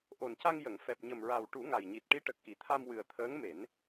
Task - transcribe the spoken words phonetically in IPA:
ʔo˨˩nca˧ŋ jə˨˩˨ŋ fɛ˨˩p̚ɲə˨˩mɹa˨˩w ʈu˨˩˦ŋa˨˩jɲi˨˩t̚ ʈi˧˥ʈə˨˩k̚ʔi˨˩˨t̪ʰa˧m wɨ˨˩ə̯t̪ʰəː˧˥ŋ me˨˩˦n

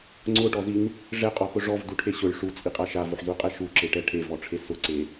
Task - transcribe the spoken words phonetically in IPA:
ŋ͡ǀʊʈɔzin | ʐɛqʼɔxʊ ʐɔvduʈʰe ɕʊɭ ʂut͡sʼiqʼa ʃavoħzuqʼɛ ʃuǁeʈɛ ʈʰevɔʈ͡ʂʰe sʊǀe

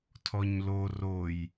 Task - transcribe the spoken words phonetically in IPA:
tʰɔɲlo roj

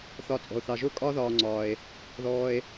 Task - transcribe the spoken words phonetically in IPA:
θɒ˨t͡sʼɔ̤˩o̯θɑ˩ʒʊː˦ kʼɒː˥ðɒː˨ŋ͡ǀɒː˩e̯ | ðɔː˨e̯

